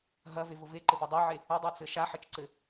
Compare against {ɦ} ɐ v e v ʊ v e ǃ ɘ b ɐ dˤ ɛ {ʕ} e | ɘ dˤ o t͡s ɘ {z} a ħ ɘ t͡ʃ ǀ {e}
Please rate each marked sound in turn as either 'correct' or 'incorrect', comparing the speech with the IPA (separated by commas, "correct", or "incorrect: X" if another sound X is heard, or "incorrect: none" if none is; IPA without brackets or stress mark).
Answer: correct, correct, incorrect: ʃ, incorrect: ɘ